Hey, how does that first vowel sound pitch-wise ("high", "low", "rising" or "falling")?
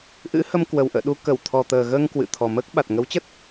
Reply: rising